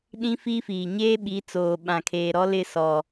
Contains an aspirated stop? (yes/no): yes